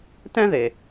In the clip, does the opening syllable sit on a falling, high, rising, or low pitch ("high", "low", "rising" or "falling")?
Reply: high